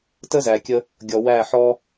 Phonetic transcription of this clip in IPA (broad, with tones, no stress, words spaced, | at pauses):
tə˦zæ˨kʲə˧ | ɡʲɔ˨wæ˦˨ ħɔ˧